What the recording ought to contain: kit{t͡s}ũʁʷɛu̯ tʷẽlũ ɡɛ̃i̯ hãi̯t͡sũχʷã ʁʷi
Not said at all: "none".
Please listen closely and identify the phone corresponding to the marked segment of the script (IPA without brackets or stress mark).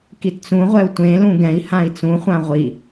t͡s